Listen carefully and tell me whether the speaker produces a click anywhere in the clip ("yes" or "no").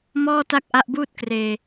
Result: no